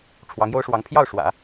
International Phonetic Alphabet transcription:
ʈ͡ʂʰ w ɑ˧˥ ŋ j o˥ ʊ̯ ʂ w ɑ˧˥ ŋ pʰ j ɑ˥˩ ʊ̯ ʂ w ä̰˨˩˦

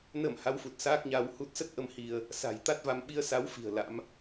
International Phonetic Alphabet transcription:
n ə˧˩ m h a˨˦ w f u˨˩ t̚ s aː˦˥ k̚ ɲ a˧ w h u˦˥ t̚ s ə˦˥ t̚ ʔ ə˧ m h i˧ ə̯ | s a̤˨˩ j t̪ a˦˥ t̚ v a˧ m ɓ i˧ ə̯ s a˨˦ w f i̤˨˩ ə̯ l a̰˧˥ m

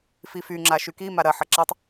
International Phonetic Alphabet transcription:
f i f y ŋ͡ǁ a ʃ y k i m a ɾ ɐ ħ ɐ ǁ a tˤ

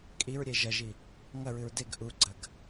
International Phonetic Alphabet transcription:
kʼ i ɹ ɾʲ e ʒ ɐ ʒ i | ŋ ɐ ɹ ɨ ɹ d e ɡ ʔ u ɡ͡ǀ ɐ ɡ

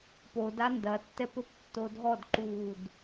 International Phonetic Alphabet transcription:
p o d a n d ɐ tː ɛ p ɘ p tː o dʱ ɔ d ǃ uː d

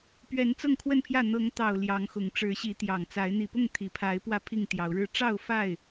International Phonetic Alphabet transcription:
p ɥ ɛ˨˦ n t͡s ɤ˥˨ ŋ kʰ w ə˥˨ n pʰ j ä˥˨ n̪ ɤ˨˦ ŋ t̪ ɑ˨˩ ʊ̯ l j ɑ˨˦ ŋ x ʊ˨˩ ŋ ʈ͡ʂ ɻ̩˨˦ ɕ i˨˦ t̪ j ɑ˨˩ ŋ t͡s a˨˦ ɪ̯ n̪ i˨˩ p ʊ˥˨ ŋ t̪ʰ i˨˩ pʰ a˨˦ ɪ̯ p w ä˥˨ pʰ i˥˨ ŋ t̪ j ɑ˨˦ ʊ̯ ɻ ɻ̩˥˨ ʈ͡ʂ ɑ˥˨ ʊ̯ f a˥˨ ɪ̯

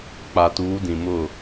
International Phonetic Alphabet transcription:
k͡p a˨ t uː˨˦ d ĩ˨ m ʊ˦˨

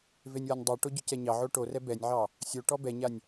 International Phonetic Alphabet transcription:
v e nʲ w a nʲ dˤ o ʈ o ɟ ʏ c ɛ ɲ ɑ ʕ o ʈ o r ɛ b ɛ nʲ ʕ ɑ | sʲ o ʈ ɔ b ɛ ɲ a nʲ

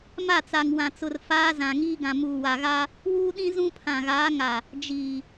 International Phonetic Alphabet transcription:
m a˦˨ t͡s a˨ ŋ w ã˨ t͡s ʊ˨ r f aː˦ z ã˨ ŋ iː˦ ɡ ã˨ m uː˨ w a˨ ɣ a˦ | w uː˦ ɗ ĩ˦ z ũ˦ pʰ ã˨ ɣ aː˨˦ ŋ a˨ | d͡ʒ iː˨

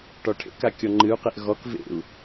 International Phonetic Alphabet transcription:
ʈ ɔ ʈʰ ḛ k a kʲ ɔ ŋ͡ǃ ɨ u̯ q e ʔ ɣ ɔ k v ḛ u̯

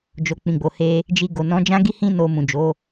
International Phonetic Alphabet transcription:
d͡ʒ o˨ k͡p ĩ˨ ɡ͡b o˨ h e˧ | d͡ʒ i˧ ɡ o˨ n ɔ̃˨˦ d͡ʒ ã˦ ɡ i˦ h ĩ˦ n o˧ m ũ˨ d͡ʒ o˨˦

